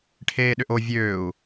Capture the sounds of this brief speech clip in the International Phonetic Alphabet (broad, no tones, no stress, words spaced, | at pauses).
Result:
ʈʰeːɗʏʔo vʲøːu̯